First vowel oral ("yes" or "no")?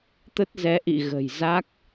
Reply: yes